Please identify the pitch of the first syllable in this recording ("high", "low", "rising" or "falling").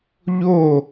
falling